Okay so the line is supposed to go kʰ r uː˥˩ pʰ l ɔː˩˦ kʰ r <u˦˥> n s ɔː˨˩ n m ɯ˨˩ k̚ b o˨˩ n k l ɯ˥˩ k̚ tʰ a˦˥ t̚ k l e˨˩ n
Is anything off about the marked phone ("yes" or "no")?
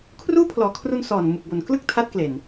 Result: yes